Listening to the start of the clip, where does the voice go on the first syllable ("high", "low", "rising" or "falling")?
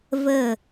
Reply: falling